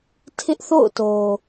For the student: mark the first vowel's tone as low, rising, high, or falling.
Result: high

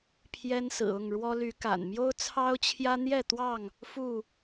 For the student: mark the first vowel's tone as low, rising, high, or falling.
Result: high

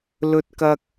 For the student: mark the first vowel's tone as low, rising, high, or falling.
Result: high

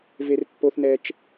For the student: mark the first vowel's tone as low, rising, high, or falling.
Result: high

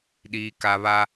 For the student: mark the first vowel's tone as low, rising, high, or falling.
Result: low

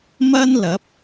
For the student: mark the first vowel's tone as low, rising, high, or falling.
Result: high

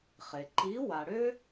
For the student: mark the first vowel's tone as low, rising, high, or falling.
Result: low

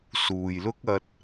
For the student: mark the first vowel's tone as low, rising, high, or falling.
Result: low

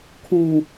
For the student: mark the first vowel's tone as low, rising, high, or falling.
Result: low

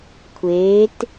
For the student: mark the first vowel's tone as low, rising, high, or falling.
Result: rising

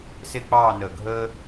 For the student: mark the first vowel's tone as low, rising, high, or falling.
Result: falling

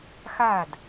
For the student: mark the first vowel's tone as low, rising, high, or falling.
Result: falling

